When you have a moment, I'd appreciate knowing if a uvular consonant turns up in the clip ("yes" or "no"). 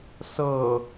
no